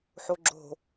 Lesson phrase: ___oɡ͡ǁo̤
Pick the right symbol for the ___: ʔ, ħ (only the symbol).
ħ